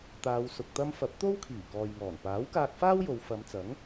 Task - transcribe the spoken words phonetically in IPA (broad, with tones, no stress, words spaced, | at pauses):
t̪aː˨˧wsʊ˨k̚t̪ɐ˥m fɐ˨˥p̚t̪o˥w kʰiː˨˩kɔː˨jŋɔː˨˩n paː˨˥wkaː˧k̚faː˥w jo˨˧w fɐ˨˧mt͡sɐ˨˥ŋ